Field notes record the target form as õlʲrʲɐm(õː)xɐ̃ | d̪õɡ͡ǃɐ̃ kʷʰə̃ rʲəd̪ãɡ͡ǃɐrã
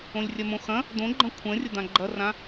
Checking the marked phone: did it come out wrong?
yes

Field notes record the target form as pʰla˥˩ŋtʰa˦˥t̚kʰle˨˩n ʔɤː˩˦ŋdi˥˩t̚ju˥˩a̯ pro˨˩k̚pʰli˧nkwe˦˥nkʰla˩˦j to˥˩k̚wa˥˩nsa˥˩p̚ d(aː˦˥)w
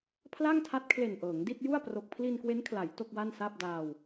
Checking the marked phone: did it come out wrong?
yes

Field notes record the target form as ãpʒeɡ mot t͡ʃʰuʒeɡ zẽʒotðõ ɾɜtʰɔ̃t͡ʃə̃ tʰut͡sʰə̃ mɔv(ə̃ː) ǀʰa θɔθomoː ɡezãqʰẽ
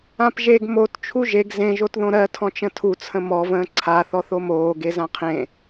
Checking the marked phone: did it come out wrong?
no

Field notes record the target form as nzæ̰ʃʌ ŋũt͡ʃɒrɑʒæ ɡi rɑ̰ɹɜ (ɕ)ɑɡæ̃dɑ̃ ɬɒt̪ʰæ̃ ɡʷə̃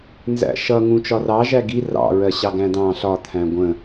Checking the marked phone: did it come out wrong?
no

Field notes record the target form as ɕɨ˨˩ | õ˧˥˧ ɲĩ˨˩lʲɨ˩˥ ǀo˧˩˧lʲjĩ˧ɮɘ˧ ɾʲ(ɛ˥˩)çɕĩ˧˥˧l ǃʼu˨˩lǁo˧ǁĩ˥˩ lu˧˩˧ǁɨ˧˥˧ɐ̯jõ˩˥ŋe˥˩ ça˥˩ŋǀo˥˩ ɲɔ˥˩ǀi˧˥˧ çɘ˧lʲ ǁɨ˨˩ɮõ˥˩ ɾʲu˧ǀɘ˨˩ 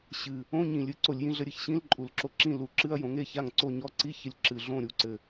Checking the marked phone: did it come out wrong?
yes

